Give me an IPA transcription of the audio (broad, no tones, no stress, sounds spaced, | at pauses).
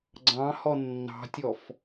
ɡ͡ǀ ɑ̃ h ɔ nː ɑ̤ tʲ ɔ f